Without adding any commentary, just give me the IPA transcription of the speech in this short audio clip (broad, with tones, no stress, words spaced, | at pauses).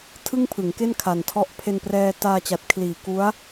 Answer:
tʰɯ˥˩ŋpʰɯ˩˦ŋke˥˩n kʰa˨˩ntʰɔ˦˥ʔ pʰe˧nprɛː˧taː˧t͡ɕa˨˩t̚ kʰliː˩˦ku˦˥a̯